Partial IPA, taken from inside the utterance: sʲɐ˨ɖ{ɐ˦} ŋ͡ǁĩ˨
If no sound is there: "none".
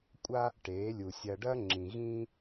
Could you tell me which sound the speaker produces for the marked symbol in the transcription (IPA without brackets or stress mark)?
ɐ˦